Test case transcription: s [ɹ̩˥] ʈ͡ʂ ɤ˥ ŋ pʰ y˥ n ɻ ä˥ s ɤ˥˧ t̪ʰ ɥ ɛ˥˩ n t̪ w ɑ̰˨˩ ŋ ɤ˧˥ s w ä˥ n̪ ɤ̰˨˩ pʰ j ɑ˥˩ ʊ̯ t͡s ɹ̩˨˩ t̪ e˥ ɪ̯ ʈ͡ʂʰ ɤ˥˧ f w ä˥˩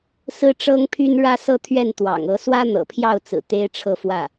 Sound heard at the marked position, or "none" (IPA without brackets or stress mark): ɹ̩˥